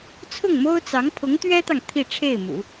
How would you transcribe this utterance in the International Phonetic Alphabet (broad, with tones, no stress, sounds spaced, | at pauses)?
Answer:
t͡sʰ ʊ˥˩ ŋ m o˥ ʊ̯ t͡s ɑ˧˥ ŋ pʰ ʊ˧˥ ŋ t̪ ɥ ɛ˥ t̪ ɑ˨ ŋ t̪ʰ i˥˧ ʈ͡ʂʰ e˥˩ ɪ̯ m ṵ˨˩˦